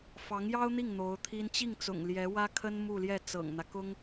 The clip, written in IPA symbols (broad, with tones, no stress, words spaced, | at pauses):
fɑ˧˥ŋjɑ˥ʊ̯n̪i˥˩ŋ n̪o˧˥ʊ̯t̪ʰi˥n t͡ɕi˥˩ŋt͡sʊ̰˨˩ŋ ljɛ˧˥wä˥kʰə˥n mu˥˧ljɛ˥˩ t͡sɤ̰˨˩ŋn̪ä˦ kʊ˥ŋ